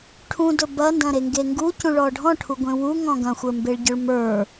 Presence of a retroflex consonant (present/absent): present